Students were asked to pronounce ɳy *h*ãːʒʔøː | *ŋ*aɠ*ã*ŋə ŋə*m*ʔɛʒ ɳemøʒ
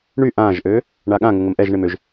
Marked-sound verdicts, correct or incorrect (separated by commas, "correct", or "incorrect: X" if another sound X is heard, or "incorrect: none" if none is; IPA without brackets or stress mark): incorrect: ʔ, incorrect: ɳ, correct, correct